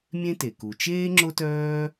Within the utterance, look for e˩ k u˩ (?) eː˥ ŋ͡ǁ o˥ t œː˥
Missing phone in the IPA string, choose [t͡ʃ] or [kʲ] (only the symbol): t͡ʃ